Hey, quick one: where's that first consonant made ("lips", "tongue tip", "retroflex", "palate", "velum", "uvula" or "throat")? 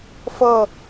lips